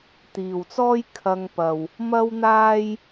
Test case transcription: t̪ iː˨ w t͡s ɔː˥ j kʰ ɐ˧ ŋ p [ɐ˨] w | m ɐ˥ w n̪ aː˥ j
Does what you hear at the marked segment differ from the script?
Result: no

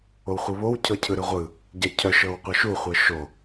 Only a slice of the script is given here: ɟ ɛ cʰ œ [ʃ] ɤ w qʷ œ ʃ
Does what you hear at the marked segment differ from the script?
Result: no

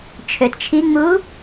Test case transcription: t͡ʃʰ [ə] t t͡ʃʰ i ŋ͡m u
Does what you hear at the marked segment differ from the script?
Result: yes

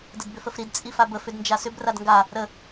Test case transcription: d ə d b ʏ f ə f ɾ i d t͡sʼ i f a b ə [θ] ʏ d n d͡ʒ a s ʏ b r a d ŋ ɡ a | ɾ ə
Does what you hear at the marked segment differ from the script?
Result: yes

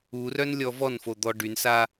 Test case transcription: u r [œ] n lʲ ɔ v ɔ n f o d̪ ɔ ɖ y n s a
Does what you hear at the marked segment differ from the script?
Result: no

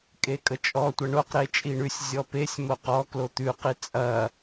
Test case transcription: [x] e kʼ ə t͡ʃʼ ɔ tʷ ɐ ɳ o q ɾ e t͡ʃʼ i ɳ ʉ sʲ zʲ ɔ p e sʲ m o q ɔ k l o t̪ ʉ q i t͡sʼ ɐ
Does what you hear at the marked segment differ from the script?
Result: yes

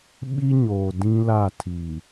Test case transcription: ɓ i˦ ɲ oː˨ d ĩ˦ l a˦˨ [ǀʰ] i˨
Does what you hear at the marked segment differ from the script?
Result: yes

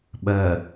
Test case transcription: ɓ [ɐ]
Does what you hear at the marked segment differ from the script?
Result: no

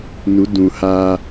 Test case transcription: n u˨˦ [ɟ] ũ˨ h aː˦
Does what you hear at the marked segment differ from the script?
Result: yes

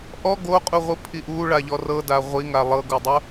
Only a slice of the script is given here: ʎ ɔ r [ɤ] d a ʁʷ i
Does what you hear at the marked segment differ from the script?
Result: no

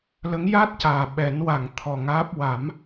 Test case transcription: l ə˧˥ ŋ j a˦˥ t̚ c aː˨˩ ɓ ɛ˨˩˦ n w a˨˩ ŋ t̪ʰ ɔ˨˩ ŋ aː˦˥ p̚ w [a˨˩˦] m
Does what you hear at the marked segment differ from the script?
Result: no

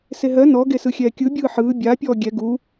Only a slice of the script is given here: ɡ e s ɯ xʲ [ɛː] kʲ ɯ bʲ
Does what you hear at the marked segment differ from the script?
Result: no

